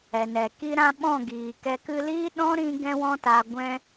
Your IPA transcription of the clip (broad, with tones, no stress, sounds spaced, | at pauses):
ɛ˨ n ɛ˨ k i˦ ɾ ã˦ ɓ ɔ̃˦˨ ɡ iː˨ k ɛ˧ k ɨ˧ l iː˦ ɗ ɔ̃˦ ɾ ĩ˦ ɡ ɛ̃˦ w ɔ̃˦ t a˧ ɡʷ ɛ̃˦